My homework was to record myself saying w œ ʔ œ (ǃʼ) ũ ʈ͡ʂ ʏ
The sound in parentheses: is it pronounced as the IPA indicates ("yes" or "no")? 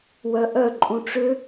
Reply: yes